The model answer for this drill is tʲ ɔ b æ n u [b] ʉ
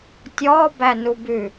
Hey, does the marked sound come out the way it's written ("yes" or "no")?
yes